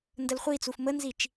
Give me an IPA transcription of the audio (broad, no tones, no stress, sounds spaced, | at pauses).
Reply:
n d ə l χʷ i t͡s u f m ə n z i t͡ʃ